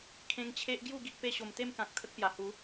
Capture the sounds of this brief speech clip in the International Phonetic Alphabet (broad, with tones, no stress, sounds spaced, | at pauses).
kʰ ẽ˧ ŋ t͡ɕʰ e˦ ʔ ɡ j u˥˧ ɡ i˦ ʔ p e˧ ɕ o˨˩ m t̪ e˥˧ m k ã˨ k̚ t̪ʰ ə˦ k̚ p j a˨˩ h u˨˦